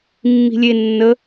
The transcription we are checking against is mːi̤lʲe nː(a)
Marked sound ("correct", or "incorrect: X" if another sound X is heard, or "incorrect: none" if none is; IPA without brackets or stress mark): incorrect: ə